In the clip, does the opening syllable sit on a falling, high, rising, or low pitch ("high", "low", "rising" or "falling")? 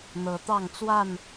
rising